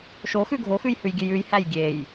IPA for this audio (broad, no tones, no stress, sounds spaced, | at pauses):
ʃ o x ʉ ɡʱ o x ʉ j h ʉ j ɡʲ ʉ j ʉ j h æ j ɡʲ e j